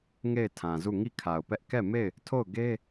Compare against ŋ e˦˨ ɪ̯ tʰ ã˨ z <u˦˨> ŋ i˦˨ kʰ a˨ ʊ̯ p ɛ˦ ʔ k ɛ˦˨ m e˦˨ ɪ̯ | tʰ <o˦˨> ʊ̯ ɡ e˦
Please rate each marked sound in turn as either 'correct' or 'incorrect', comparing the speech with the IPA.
correct, correct

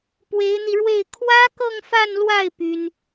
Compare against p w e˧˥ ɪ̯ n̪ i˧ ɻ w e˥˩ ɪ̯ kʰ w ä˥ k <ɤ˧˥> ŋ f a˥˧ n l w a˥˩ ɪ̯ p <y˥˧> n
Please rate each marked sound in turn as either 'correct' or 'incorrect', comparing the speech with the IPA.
incorrect, incorrect

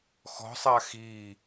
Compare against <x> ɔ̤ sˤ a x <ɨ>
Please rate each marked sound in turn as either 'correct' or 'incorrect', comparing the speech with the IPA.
correct, incorrect

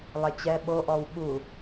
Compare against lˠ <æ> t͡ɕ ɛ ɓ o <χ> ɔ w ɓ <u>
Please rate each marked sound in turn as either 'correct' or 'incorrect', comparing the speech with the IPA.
incorrect, incorrect, correct

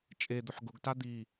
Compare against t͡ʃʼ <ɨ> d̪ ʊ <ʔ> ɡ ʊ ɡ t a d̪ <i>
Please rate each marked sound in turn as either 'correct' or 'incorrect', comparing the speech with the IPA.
incorrect, incorrect, correct

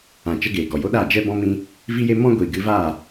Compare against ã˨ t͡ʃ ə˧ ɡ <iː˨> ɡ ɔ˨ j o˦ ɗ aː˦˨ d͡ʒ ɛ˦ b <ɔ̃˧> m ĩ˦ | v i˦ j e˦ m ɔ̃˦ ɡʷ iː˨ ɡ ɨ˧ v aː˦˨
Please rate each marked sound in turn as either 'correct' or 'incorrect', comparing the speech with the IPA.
incorrect, incorrect

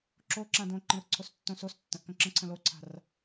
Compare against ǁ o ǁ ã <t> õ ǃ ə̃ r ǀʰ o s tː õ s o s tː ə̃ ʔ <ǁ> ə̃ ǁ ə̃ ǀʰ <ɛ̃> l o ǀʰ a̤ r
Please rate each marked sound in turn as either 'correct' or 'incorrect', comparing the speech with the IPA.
incorrect, incorrect, incorrect

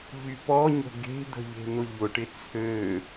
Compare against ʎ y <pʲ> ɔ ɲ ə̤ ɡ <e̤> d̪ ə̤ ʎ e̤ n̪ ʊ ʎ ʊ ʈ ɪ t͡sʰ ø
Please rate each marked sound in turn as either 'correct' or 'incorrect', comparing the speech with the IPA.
incorrect, correct

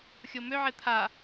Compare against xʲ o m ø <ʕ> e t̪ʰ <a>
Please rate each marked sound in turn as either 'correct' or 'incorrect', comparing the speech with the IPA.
correct, correct

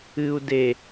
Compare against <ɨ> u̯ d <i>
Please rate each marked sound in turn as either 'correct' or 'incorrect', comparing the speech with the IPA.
correct, incorrect

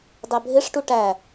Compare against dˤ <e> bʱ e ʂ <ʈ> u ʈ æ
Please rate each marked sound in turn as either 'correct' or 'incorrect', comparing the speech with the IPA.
incorrect, correct

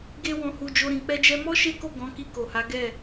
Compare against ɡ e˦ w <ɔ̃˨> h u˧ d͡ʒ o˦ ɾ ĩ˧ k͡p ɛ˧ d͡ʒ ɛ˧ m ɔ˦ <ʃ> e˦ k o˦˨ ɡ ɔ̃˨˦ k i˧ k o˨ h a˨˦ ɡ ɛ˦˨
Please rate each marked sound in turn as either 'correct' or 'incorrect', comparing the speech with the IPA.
incorrect, correct

